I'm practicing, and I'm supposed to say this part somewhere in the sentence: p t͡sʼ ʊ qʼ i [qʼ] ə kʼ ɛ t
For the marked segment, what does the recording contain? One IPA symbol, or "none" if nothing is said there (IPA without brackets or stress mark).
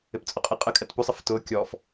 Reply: qʼ